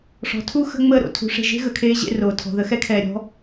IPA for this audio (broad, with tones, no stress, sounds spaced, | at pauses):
ʂ ɔ̤˨ tʰ u˦ x ə̤˦ ŋ͡m əː˦˨ ɾ o̰˨ tʰ ṳ˨˦ ʂ e̤˨ ʒ e̤˦ ɣ ə˨ kʰ eː˦ ʑ ḛ˦ r oː˨ tʰ ɔ̤˨ ð ə˨˦ x ɛ˦ kʰ ɛː˨ ɾʲ ɔ̤˦